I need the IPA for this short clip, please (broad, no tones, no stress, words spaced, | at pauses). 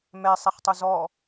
mɛsˤɛχtˤo zɔ